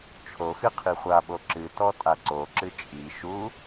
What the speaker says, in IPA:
t͡ʃʰ o x ɨ qʰ i χʷ a ɓ o ǁ ɨ t ɔ tʼ a ǀ o ǁ ɨ t͡ʃʼ i ʃ u

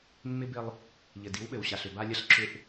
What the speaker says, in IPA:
mː ɪ˦ b ɪ˦ lˠ | ʎ ɘ˨ d i˨˦ w ɓ ɘ˨ w ɕ a˨ ɬ ʏ˨ b a˦ lʲ ɐ˦ ɬ ǁ ʏ˦ ʔ

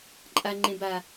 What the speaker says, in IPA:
ǃʼ a ŋ͡ǃ ẽ b a

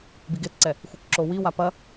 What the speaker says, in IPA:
b i ɡ e t ǀ ɛ | xʷ i k ǁ o w i w a p ɐ

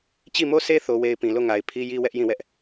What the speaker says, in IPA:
t͡ɕ i˦˨ m o˦˨ s e˦ θ o˦ w e˦ ɪ̯ p ĩ˨ l o˦˨ ŋ a˨ ɪ̯ pʰ i˦ j i˦ w ɛ˦ ʔ j ĩ˦˨ w ɛ˦ ʔ

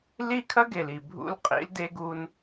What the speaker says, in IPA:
l i˦ kʰ ɐ˦ ɡ e˨ l i˨ bʱ ṵ˦ l qʼ ḭ˦ l d e˦ ɡ u˦ n

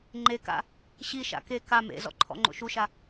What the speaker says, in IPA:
ŋ͡ǃ e k a̰ | ɕ i ʃ a̰ k e k a m ḛ z ɔ̰ ǃʰ ɔ̰ ŋ͡ǃ o̰ ʃ u ʃ a

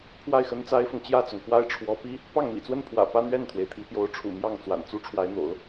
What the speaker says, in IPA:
pʰ w a˥˩ ɪ̯ x ə˥ n t͡s a˥ ɪ̯ f ʊ˨ ŋ t͡ɕ j ä˥˩ t͡s ʊ˩ ŋ x w a˥ ɪ̯ ʈ͡ʂʰ w ɔ˧˥ p i˥ | p ɑ˥˩ ŋ m ḭ˨˩ t͡s w ə˥˩ n pʰ w ä̰˨˩ p ä˥ n̪ ɥ ɛ˥˩ n t̪ʰ w e˩ ɪ̯ t̪ʰ i˧˥ p j o˧˥ ʊ̯ ʈ͡ʂʰ ṵ˨˩ m j ɑ˥˩ ŋ t͡s w a̰˨˩ n t͡s u˥ ʈ͡ʂʰ w a˧˥ ɪ̯ n̪ o̰˨˩˦ ʊ̯

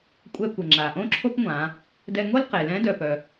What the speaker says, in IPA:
kʷʼ ɛ˧ kʷ ɪ˩ ŋ͡ǁ a˩ ʔ õ˥ ǁʰ o˥ p ŋʷ ã˩˧ | d ɛ˧ ŋ o˥ l q e˩ l ɛ̃˧˥ d œ˩ p œ˩

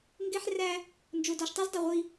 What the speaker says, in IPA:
ŋ ɡ e˦ ħ r æ˦ | n d͡ʒ o˨ d ɔ˨ ʃ tˤ e˦ z dˤ ɛ˨ ʁʷ i˦

